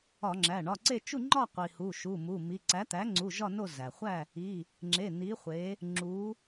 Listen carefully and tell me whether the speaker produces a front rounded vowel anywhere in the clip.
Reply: no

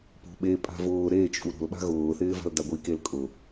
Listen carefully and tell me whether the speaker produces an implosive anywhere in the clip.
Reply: yes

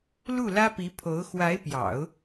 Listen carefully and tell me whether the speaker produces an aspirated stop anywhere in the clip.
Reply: yes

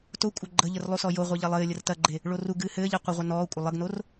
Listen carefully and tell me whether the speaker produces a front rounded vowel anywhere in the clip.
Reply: no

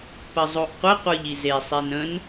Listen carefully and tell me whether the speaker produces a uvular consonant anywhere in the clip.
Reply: yes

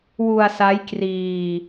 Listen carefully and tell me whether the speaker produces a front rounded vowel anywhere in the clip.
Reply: no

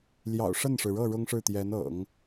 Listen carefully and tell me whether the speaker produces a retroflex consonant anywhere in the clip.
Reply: yes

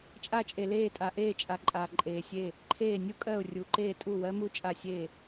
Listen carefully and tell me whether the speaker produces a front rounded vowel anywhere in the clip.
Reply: no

